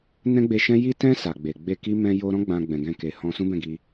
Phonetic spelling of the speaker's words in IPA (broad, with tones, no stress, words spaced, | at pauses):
nɛ̃˦ɡ͡be˧ʃɛ̃˦ ji˦ tɛ̃˧ sa˨ɡ͡be˨ ɡ͡be˧ki˦ mɛ̃˧jo˧ɾɔ̃˦ ɡ͡bã˧ɡ͡bɛ̃˨ɡɛ̃˧ke˨ hɔ̃˧sũ˦bɛ̃˦˨ɡi˧